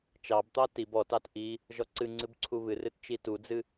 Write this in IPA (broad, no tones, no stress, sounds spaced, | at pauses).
t͡ʃ ɑ b t̪ ɑ t i b ɔ t ɑ t ʔ i | ʒ ɔ ǀ ɨ ŋ͡ǀ ɨ b ǀʰ u β ɨ r ɨ t t͡ʃ i t u d͡z ɨ